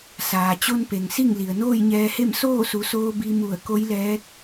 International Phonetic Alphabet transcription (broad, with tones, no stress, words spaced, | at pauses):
saː˩t͡ɕo˧npe˩ŋ si˥˨ŋli˩ə̯ noː˥˨jɲɛː˧he˥˨m soː˥˨su˩˧soː˧ bi˧mu˧˩ə̯ ko˧˥jlɛː˧˥k̚